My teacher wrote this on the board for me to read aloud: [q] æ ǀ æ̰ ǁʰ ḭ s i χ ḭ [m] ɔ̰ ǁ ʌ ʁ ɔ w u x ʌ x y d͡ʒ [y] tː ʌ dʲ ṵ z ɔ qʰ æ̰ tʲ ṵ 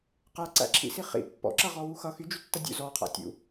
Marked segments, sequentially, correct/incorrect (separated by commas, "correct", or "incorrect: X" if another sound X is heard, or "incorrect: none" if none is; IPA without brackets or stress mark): correct, incorrect: pː, correct